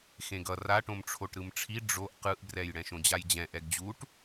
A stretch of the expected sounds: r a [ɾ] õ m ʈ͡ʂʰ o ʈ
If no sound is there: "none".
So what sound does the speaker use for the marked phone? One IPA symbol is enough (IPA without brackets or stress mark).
ʈ